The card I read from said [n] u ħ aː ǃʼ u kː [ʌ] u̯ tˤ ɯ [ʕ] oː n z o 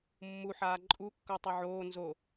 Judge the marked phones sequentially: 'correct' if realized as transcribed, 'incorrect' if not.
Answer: incorrect: mː, correct, correct

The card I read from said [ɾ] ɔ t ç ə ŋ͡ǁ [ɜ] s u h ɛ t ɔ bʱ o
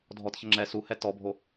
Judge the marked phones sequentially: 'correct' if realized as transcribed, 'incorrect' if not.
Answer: incorrect: dʱ, incorrect: ɛ

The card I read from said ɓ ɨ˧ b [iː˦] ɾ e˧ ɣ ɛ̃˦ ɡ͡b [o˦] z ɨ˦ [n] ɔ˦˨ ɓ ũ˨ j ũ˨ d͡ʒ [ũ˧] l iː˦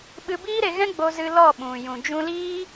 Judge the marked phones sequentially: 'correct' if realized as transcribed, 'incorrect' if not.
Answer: correct, correct, incorrect: l, correct

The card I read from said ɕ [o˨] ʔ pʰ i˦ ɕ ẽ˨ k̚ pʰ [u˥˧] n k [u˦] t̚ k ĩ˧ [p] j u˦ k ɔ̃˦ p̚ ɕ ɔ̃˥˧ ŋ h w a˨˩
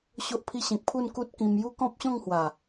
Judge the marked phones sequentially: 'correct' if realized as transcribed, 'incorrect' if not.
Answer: incorrect: o˦, correct, correct, incorrect: m

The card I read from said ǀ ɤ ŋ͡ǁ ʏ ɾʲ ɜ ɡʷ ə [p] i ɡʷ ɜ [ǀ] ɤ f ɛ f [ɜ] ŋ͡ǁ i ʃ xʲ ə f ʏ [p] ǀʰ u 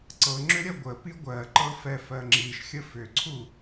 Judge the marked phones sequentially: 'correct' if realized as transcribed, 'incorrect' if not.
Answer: correct, incorrect: ǃ, correct, incorrect: none

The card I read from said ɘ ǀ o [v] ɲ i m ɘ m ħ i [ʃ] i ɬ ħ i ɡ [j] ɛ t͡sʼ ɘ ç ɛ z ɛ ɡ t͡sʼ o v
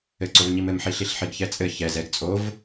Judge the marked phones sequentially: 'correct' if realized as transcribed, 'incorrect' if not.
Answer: correct, incorrect: ɬ, incorrect: ç

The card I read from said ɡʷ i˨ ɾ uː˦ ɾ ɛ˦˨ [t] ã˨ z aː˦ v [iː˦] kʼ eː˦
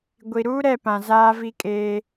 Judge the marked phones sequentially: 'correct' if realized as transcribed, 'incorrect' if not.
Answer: incorrect: p, incorrect: i˦

